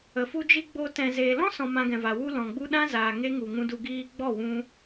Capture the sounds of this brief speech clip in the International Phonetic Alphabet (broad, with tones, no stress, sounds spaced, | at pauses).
ə˨ f u˦ d͡ʒ i˦ ɡ͡b o˧ t ɛ̃˨ z eː˨ l ɔ̃˦ s ɔ̃˧ m ã˧ ɡ ɛ̃˨ v a˨ w u˧ l ɔ̃˨ ɡ͡b u˦ ɗ ã˦ z aː˨ ŋ e˦ ŋ u˨ ŋ ũ˧ d u˧ ɡ iː˧ ɡ͡b ɔ˦˨ w ũ˧